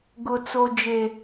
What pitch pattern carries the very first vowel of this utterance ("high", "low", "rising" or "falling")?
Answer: low